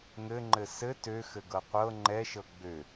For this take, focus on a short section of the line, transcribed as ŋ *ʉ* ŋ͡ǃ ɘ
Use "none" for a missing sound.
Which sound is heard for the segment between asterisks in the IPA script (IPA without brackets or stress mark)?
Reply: ɘ